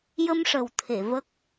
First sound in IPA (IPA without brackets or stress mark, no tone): j